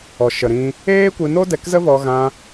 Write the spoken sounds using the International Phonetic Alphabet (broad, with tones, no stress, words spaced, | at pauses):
ɔ˨ʃə˨ɾĩ˧ | eː˦kʷɨ˧no˦ dɛ˧kzə˦vɔ˧ ɣã˧